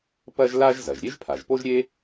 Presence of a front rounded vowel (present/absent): absent